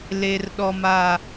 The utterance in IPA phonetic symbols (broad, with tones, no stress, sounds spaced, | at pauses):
l e˨ r ɗ ɔ˨ m a˨